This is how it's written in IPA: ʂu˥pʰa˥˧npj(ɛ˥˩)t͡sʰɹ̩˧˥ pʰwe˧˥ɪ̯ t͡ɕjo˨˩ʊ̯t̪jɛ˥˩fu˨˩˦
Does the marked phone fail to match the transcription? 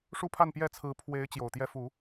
no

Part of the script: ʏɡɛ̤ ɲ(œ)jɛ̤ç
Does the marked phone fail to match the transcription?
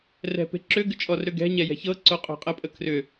yes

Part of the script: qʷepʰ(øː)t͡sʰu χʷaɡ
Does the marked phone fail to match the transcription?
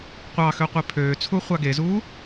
no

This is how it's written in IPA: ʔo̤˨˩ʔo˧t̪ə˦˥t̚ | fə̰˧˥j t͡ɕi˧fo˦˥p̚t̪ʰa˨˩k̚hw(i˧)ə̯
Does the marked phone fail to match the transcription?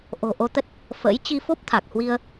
no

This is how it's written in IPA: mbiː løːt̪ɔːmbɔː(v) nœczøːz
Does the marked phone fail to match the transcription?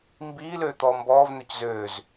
no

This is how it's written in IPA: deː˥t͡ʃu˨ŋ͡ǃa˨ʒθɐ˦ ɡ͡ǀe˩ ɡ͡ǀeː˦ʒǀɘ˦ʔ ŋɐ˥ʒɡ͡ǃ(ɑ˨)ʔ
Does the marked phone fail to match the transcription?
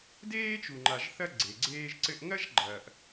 yes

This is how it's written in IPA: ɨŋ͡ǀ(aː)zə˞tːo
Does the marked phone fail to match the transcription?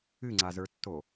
yes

